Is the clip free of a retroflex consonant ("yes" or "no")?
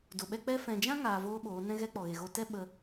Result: yes